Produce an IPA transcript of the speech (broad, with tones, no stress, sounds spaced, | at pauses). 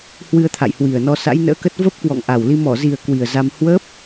h w ɨ˧ ə̯ t̪ʰ a̰˧˨ j h w i˨˩ ə̯ n ɔ˧ s a̰˧˥ j n ə̰ː˧˥ k ə˦˥ t̚ v ə˦˥ p̚ k w ɔ̰˧˨ ŋ ʔ a˨˩ w l i˧ m ɔ˧˩ z i˨˩ ə̯ k w i˨˩ ə̯ z a˧ m h w ə˦˥ p̚